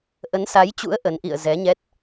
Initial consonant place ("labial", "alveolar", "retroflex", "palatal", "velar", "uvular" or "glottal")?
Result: glottal